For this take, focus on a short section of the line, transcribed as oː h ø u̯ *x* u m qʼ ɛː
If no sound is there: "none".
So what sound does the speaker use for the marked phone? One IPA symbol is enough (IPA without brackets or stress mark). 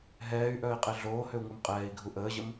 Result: ŋ